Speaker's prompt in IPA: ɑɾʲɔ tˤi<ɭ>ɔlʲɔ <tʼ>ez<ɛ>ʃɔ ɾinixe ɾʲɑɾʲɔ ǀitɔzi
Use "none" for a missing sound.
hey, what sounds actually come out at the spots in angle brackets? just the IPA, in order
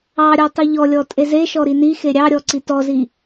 ʎ, tʼ, e

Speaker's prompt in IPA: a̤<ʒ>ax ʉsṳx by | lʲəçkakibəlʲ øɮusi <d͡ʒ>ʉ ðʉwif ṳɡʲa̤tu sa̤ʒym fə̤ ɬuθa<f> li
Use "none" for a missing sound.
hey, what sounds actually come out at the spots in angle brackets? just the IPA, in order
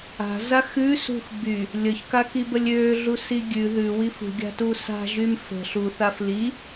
z, ɡʲ, f

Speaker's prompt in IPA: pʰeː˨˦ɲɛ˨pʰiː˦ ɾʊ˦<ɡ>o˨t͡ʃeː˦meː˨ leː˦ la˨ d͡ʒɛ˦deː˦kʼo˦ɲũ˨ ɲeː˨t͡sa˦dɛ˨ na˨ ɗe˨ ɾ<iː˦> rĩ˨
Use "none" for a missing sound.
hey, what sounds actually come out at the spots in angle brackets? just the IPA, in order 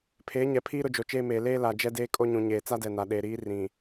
d͡ʒ, iː˦

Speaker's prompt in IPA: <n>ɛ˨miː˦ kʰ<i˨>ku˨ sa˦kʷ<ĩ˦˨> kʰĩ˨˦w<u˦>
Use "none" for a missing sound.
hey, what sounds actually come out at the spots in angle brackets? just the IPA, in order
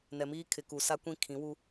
n, ɪ˨, ĩ˦˨, u˦

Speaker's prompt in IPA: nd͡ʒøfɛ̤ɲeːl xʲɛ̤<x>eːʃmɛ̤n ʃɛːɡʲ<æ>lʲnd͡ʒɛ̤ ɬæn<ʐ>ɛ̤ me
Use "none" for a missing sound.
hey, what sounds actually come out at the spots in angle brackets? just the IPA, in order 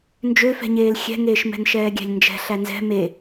ŋ, æ̤, z

